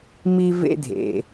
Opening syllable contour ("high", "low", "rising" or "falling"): high